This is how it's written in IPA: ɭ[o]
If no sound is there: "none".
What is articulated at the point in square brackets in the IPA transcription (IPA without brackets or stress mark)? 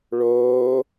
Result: oː